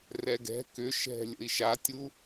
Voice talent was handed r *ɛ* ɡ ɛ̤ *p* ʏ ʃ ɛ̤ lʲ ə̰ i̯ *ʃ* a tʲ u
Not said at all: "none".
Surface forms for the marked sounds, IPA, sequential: ɛ, k, ʃ

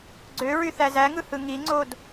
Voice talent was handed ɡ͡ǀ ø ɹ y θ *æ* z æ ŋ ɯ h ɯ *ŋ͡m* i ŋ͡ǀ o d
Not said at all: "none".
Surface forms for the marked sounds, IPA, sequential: æ, ŋ

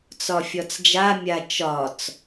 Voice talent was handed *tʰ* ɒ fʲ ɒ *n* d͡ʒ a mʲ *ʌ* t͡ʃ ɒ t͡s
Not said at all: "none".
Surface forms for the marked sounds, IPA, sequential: t͡s, t͡s, a

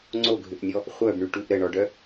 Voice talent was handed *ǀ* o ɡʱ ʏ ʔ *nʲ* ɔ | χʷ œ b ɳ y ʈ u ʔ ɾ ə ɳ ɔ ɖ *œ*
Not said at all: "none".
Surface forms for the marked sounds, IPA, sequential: ŋ͡ǀ, nʲ, œ

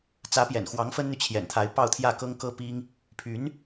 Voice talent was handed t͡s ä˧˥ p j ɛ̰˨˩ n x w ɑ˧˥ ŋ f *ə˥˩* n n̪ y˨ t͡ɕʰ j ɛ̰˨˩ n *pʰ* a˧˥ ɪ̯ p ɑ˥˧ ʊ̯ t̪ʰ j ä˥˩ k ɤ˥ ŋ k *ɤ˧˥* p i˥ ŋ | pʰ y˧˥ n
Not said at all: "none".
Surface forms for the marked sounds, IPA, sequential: ə˥, t̪ʰ, ɤ˥

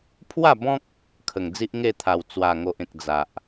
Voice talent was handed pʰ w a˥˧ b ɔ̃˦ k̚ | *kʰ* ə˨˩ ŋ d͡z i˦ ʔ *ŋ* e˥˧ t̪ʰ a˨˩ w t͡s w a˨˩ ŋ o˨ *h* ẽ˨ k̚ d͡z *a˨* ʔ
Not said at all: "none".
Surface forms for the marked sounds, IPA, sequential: kʰ, ŋ, ʔ, a˨

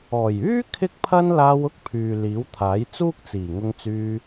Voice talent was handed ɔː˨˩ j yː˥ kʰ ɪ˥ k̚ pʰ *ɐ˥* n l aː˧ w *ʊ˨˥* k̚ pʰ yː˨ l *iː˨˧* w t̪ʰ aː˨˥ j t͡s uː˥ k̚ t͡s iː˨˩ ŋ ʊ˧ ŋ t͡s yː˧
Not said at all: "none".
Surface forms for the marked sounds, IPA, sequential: ɐ˥, ʊ˥, iː˨˥

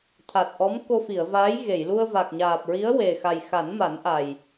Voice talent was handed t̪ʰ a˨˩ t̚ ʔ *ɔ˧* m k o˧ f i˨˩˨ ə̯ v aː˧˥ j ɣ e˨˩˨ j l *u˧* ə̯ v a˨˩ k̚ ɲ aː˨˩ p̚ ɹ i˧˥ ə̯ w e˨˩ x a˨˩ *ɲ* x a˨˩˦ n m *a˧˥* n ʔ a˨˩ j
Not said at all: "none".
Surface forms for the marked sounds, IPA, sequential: ɔ˧˥, u˧, j, a˨˩˦

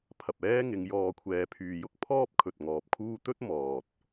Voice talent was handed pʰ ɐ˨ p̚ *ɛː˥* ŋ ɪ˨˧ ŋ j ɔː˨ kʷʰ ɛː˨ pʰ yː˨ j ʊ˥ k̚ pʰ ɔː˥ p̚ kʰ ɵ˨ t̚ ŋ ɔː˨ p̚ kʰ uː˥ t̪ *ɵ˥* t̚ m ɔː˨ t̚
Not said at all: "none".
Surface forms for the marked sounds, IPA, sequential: ɛː˥, ɵ˥

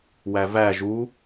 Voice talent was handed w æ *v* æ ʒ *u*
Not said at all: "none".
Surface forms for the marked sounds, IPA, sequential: v, u

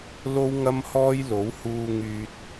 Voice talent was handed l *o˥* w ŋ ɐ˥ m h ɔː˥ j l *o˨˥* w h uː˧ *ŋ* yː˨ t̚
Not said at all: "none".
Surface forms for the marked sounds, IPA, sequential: o˥, o˨˥, ŋ

